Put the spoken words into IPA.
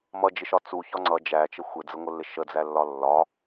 m ʌ d͡ʒ ɪ ʃ ɒ t͡s u ç ɒ ŋ͡ǀ ʌ d͡ʒ æ t͡ʃ ə xʷ ɪ d͡z ə ŋʷ ə lː ɪ ʃ ə d͡z æ lː ɒ lː ɒ

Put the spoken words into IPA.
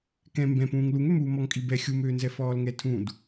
k ɛ̃ m b ɛ̃ p ũː ŋ l u ŋ ø m uː m ɔ ŋ kʼ i b ɛ xʲ u m øː n z ɛ f ɔː l ŋ ɛ tʰ ũ d

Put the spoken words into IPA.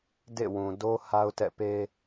d ḛ˦˨ w ũ˨ d o˦ h a˦ ʊ̯ t ɛ̰˦˨ p e˦

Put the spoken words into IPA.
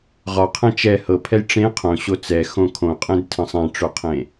ʁ ɒ qʰ ɛ̃ t͡ʃ ɛ h ɤ pʰ ɛ j ʈ͡ʂ ẽ qʰ õ ɕ o t͡s ɛ x õ kʰ õ qʼ ẽ d tʰ ə̃ sˤ ɛ̃ ʈ͡ʂ o qʰ ẽ

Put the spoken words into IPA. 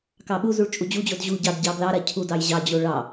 k ɑ ɓ u z u ɭ t͡ʃʼ u d͡ʑ u d͡ʑ o d ʑ u ɟ ɑ d ɟ ɑ b l ɑ ɾ a cʰ u d ɑ j ʑ ɑ d͡ʑ o ɭ ɑ

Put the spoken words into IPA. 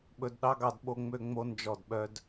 ɓ ɵ˧ d ɗ ɑ˦ ɡ ɑ˧ d ɓ o˦ ŋ͡m ø˦ ŋ͡m o˦ n d͡ʒ ɔ˦˨ d ɓ œ˦ d

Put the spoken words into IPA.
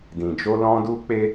d ĩ˨ d͡ʒ o˧ l ɔ̃˧ d u˦ k͡p e˦

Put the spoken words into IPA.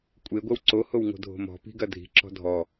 kʷʼ e ɡʷ ɐ w ǀ o h o w ŋ o̤ dʱ o̤ m ɔ̤ p i̤ ɡ ɐ dʱ i̤ ǁ ɔ̤ dʱ ɔ

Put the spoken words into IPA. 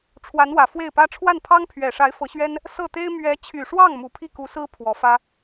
ʈ͡ʂʰ w a˧˥ n w ä˨˩ f w e˥˩ ɪ̯ p ä˥ ʈ͡ʂʰ w a˥˩ n pʰ ɑ˥ ŋ pʰ ɥ ɛ˨˩ ʂ a˧˥ ɪ̯ f ɤ˧˥ ɕ ɥ ɛ˥ n | s ɤ˥˩ t̪ e˥ ɪ̯ m ɥ ɛ˧˥ t͡ɕʰ y˨˩ ʂ w ɑ˥˩ ŋ m u˨˩ pʰ i˥˩ k u˧˥ s ɹ̩˥ pʰ w ɔ˧˥ f ä˥

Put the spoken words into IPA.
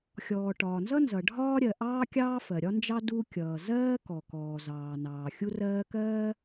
xʲ ɔː˩ ʈ ɒː˩ n z ʌ˥ n z ʌ˩ ɖʱ ɒː˥ ɾʲ ɜ˩ ʔ ɑː˥ kʲ ɑː˥ f ɜ˩ ɾʲ ɒ˥ n d͡ʒ ɑ˥ d u˥ kʲ ʌː˩ z ɜː˥ k ɔ˩ k ɔː˩ z ɑː˩ n ɑː˩ xʲ u˥ r ɜː˥ k ɜː˥

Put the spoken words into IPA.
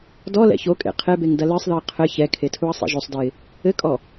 d ɔ l ɛ̰ ç o kʼ ḛ qʰ e b e ŋ d ɐ l ɨ sˤ ð ɨ ə̯ qʰ ɘ ç ɛ kʰ e tʰ u ə̯ sˤ ḭ ʒ o sˤ d ɨ ɪ̯ | ɘ kʼ ɔ

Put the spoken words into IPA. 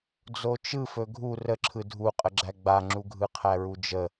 d͡z o t͡ʃ ɯ f ɵ ɡʱ u r ə ǁʰ ɯ dʱ u qʼ ə ɡ͡ǁ æ ɡ͡b a ŋ͡ǁ u ɡʱ ɯ qʰ æ ɹ u d͡ʒ ə

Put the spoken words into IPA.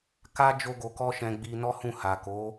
k a˦ d͡ʒ o˦ ɡ o˧ k ɔ˦ ʃ ɛ̃˧ ɡ͡b i˧ n ɔ˦ h ũ˦˨ h a˨ k o˨˦

